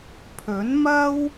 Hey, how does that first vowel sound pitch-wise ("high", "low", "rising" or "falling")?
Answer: rising